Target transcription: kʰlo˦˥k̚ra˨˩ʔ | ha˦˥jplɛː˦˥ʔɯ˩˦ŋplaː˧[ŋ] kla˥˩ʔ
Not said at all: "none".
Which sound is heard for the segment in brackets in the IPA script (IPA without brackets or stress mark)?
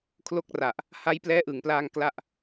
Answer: ŋ